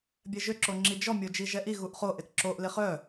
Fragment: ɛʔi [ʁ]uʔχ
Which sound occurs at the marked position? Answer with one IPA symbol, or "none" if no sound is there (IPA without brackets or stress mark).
ɣ